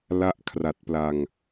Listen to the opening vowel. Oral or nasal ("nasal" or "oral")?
oral